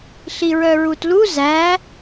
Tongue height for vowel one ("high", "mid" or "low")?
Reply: high